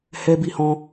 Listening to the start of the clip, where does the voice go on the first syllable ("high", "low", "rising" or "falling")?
high